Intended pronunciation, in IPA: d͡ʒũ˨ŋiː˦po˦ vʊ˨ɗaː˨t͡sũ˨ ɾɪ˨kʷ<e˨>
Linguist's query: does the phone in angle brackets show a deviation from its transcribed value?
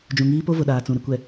yes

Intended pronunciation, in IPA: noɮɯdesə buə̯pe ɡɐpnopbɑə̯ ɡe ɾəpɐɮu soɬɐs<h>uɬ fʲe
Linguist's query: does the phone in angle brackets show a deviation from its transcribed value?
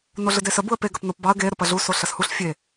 no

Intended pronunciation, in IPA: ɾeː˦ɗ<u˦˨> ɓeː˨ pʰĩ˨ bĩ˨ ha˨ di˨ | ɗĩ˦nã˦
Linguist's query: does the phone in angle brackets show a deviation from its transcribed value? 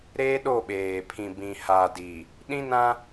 yes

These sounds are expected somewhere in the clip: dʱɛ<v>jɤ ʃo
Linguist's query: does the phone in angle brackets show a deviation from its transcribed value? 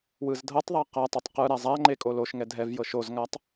no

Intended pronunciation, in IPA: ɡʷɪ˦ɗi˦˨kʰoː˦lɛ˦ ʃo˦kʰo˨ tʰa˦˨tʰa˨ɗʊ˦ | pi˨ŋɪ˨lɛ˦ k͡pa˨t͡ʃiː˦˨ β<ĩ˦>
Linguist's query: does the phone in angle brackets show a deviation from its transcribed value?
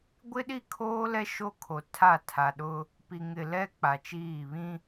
no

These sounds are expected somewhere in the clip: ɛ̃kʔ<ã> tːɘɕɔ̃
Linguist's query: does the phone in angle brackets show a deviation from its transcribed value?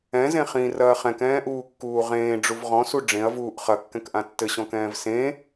no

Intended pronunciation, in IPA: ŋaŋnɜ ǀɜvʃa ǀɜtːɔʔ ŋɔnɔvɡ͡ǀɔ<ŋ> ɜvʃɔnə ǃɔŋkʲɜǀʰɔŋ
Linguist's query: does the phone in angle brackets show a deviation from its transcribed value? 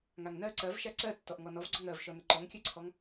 no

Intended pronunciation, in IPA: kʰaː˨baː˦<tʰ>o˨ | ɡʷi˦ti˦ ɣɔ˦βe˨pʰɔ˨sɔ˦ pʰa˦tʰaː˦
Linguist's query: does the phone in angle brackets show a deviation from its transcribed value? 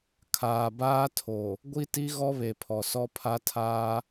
no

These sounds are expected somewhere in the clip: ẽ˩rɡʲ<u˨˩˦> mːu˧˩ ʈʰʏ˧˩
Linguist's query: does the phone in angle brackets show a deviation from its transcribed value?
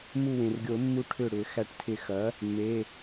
yes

